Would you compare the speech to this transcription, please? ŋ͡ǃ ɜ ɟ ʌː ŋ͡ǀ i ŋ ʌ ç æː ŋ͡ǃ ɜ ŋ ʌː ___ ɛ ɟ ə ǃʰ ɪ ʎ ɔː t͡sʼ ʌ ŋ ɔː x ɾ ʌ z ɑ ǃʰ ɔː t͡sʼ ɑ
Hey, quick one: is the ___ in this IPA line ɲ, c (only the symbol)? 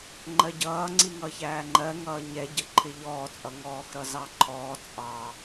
ɲ